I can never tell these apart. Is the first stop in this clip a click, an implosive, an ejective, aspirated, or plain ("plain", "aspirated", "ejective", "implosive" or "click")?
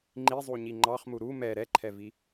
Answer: click